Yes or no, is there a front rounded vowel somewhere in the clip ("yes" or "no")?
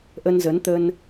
no